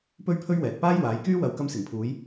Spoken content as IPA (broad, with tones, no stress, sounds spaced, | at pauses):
p ɵ˥ ɥ pʰ ɵ˥ ɥ w ɛː˨ t̚ p aː˥ j w aː˨˧ j k yː˥ w ɐ˨ w k ɐ˧ m s ɪ˨˩ ŋ pʰ uː˨˧ j